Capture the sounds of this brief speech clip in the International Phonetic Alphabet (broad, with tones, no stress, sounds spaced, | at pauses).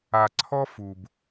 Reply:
a˨ ǀʰ ɔ˦ f u˨ b